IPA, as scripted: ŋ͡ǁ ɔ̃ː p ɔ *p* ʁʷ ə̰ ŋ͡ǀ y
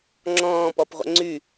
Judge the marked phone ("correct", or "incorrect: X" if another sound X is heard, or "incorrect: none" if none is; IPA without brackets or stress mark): correct